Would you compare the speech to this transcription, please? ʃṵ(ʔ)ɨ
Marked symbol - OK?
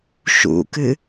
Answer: no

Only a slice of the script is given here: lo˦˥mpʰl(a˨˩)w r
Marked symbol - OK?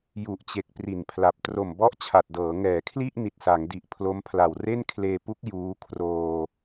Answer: yes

